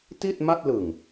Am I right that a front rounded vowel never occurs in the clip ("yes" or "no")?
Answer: yes